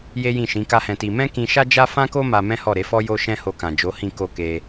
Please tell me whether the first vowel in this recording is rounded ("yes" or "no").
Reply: no